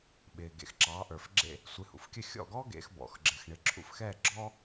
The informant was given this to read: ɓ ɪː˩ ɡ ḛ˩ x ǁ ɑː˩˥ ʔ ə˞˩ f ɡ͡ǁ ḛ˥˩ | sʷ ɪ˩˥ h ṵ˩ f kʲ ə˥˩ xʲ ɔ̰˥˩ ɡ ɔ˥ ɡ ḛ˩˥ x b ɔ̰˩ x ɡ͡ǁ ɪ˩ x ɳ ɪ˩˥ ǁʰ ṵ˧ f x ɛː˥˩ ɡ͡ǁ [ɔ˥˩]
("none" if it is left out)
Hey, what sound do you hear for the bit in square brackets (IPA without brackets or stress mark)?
ɔ˥